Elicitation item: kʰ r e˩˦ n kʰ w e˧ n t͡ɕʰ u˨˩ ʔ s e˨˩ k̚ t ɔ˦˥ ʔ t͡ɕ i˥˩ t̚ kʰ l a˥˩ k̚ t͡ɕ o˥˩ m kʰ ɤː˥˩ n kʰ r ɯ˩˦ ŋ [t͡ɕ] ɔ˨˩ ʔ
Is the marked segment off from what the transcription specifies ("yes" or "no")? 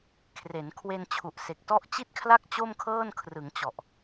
no